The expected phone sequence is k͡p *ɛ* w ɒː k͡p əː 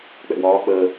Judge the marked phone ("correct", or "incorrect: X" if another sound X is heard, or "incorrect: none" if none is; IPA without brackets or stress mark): incorrect: ɛ̰